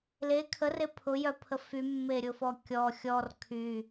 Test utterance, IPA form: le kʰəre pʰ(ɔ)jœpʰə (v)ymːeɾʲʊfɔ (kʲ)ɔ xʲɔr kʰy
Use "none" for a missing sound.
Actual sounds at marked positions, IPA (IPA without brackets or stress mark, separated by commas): ʊ, f, kʲ